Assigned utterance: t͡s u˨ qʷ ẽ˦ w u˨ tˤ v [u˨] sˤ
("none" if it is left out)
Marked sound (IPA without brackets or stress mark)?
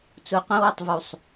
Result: u˨